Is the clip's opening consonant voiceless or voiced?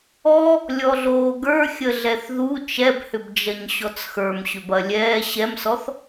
voiced